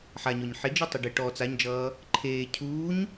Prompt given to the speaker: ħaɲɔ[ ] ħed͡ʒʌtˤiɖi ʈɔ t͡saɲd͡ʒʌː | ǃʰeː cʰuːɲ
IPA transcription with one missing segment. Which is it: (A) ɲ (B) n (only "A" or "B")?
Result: A